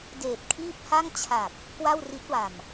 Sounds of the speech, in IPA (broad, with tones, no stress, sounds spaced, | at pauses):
d eː˨˩ t̚ kʰ iː˥˩ p̚ h a˥˩ ŋ t͡ɕʰ a˨˩ k̚ | k w a˥˩ w r i˦˥ t̚ w a˨˩ m